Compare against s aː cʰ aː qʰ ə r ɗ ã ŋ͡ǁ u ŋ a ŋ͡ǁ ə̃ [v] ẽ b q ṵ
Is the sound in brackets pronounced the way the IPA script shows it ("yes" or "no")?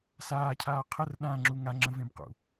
yes